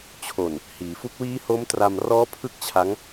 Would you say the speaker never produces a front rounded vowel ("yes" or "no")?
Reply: yes